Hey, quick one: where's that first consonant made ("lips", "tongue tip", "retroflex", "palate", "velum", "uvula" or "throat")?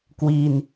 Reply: velum